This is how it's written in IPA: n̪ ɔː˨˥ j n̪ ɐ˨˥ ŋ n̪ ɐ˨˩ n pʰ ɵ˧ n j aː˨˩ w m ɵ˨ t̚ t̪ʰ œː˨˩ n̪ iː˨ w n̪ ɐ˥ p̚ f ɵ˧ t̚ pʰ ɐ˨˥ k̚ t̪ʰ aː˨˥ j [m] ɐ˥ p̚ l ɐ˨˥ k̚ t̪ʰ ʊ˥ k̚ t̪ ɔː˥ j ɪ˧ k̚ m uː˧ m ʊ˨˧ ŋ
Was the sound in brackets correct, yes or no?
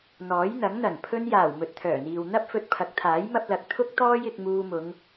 yes